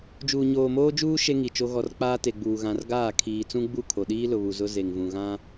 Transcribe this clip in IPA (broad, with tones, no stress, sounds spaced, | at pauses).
d͡ʒ uː˨ ɲ oː˨ m oː˦ d͡ʒ uː˦ ʃ e˦ ŋ i˨ t͡ʃ o˦ ɣ ɔ˨ r k͡p aː˦ t e˨ ɡ͡b uː˨ ɣ ã˨ r ɡ aː˦˨ kʰ iː˨ t͡s ũ˦ ɡ͡b u˦˨ kʰ o˨ ɗ iː˦ l ʊ˨ β u˨ z ʊ˦ z e˨ ŋ v ũ˨ ɣ ã˦